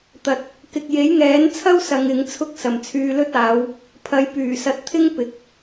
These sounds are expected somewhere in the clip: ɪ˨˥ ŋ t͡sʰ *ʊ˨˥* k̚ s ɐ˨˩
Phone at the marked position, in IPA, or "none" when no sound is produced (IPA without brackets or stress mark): ʊ˥